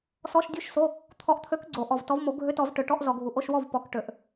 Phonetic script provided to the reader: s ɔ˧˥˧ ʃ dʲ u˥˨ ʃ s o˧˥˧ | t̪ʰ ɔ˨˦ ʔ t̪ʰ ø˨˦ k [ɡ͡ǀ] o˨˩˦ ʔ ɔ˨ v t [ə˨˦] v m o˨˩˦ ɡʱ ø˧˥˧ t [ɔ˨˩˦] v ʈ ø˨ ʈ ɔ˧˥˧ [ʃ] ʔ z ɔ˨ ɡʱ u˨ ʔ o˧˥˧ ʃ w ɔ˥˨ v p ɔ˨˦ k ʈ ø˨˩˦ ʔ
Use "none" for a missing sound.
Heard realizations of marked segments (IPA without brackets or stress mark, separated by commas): ɡ͡ǀ, ɔ˨˦, ɔ˨˩˦, none